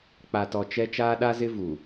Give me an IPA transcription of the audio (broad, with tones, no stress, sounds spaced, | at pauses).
k͡p a˨ t ɔ˨ t͡ʃ ɛ˦ t͡ʃ aː˦ ɗ a˦ z ɪ˦ v u˨